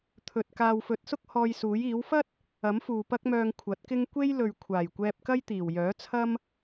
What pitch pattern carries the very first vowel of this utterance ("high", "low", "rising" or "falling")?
low